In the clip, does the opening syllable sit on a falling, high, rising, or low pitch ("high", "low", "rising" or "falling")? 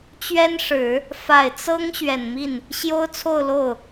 high